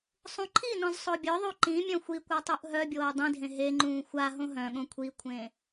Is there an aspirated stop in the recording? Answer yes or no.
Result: yes